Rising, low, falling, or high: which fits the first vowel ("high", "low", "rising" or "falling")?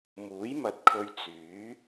rising